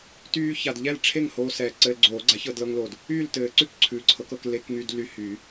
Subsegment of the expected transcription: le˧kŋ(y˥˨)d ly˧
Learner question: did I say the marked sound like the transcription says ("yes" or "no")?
no